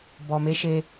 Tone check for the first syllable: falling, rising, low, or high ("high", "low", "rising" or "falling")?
low